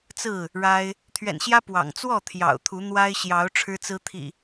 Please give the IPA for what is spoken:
t͡s ɹ̩˥˨ | ɻ a˦ ɪ̯ | t̪ʰ ɥ ɛ̰˨˩ n ɕ j ä˦ p w ɑ̰˨˩ ŋ t͡s w ɔ˥˨ t̪ʰ j ɑ̰˨˩ ʊ̯ t̪ʰ u˨˦ n̪ w a˦ ɪ̯ ɕ j ɑ˨˦ ʊ̯ ʈ͡ʂʰ ɻ̩˦ t͡s ɹ̩˦ t̪ʰ ḭ˨˩

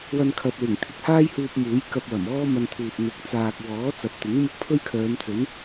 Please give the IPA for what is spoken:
w ɐ˧ n kʰ ɐ˨ t̚ w ɪ˨˩ ŋ t̪ʰ ɪ˧ k̚ h aː˥ j h uː˧ p̚ m uː˨˥ j k ɐ˧ p̚ w ɐ˨˩ m ɔː˥ m ɐ˧ n t̪ʰ uː˨ t̚ n̪ ɪ˨˥ k̚ t͡s aː˨ k̚ w ɔː˨˥ t͡s ɐ˨˥ p̚ t̪ ɪ˨˥ ŋ m ʊ˥ k̚ pʰ ɵ˥ ɥ kʰ œː˨˧ m t͡s ɵ˨˥ n

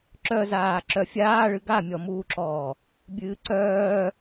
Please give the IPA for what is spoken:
ǁ œ z aː ǁ œ fʲ aː ɭ ɨ ɡ a mʲ ɔ m uː ǁ ɔː | bʲ ɨː ǀ œː

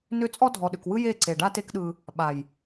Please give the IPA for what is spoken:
n ʏ˦˨ t͡sʼ ɔ˦ dʱ ɔ˨ ɗ ʏ˨ k w ɯ˦ j e˦˨ ǀ e˨ ɖ a˦ t e˦ k ɗ ɯ˧ | ɓ a˨ j

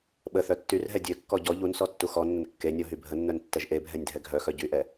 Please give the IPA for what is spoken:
ɓ ə θ œ tː y r ɦ ɛ dʲ ø kː ɔ ɟ ɔ ʎ u n s ɔ tː u x ɔ nː ə n kː e nʲ ɔ ɦ y bʱ ə nː œ n tː ɛ ʒ ʔ e bʱ ɛ nʲ dʱ ɛ ɡʱ œ x œ ɟ y ʔ ɛ

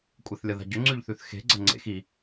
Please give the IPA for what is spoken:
kʷʼ e θ lʲ ɐ ð a̤ ɟ ɵ ŋ͡ǀ ʉ ʎ θ ʉ θ x e̤ ɡ͡ǀ ɐ ŋ͡ǀ ḛ x i

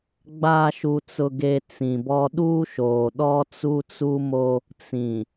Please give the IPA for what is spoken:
ɡ͡b a˨ ʃ u˨ t͡s ʊ˨ ɡ e˨ t͡s ĩ˨ b ɔ˦ ɗ uː˦ ʃ oː˨ ɗ ɔ˦ t͡s u˦ t͡s u˦ m o˦ | t͡s ĩ˨

